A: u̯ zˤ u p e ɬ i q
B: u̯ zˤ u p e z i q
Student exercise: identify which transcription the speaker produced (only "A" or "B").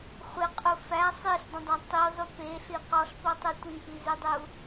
A